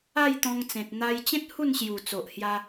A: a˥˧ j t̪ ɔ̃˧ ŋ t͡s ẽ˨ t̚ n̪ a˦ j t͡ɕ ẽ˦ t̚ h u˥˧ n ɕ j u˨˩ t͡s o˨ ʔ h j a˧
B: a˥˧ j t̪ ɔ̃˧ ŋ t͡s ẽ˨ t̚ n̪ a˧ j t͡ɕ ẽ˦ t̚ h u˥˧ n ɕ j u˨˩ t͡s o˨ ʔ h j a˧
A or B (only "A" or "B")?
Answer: B